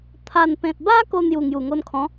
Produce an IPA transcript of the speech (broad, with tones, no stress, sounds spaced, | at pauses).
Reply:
t̪ʰ a˨˩ n p ẽ˨ t̚ b a˦ k o˧ n̪ j u˨˩ ŋ j u˨˩ ŋ o˧ n kʰ ɔ̃˨˦